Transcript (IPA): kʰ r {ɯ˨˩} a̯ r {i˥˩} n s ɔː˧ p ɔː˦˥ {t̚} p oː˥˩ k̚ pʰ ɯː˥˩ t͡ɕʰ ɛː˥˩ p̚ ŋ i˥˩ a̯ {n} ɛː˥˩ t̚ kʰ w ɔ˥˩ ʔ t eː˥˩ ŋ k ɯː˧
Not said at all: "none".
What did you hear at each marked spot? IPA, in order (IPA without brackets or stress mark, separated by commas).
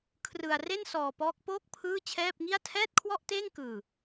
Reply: ɯ˧, e˥˩, k̚, tʰ